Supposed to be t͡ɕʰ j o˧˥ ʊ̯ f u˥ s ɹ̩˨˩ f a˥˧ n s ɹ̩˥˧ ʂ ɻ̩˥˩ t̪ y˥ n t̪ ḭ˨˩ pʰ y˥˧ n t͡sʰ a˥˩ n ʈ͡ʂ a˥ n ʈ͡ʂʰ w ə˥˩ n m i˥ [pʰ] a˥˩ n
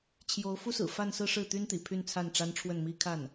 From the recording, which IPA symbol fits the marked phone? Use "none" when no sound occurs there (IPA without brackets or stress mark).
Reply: kʰ